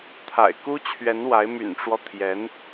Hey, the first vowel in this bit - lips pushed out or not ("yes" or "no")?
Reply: no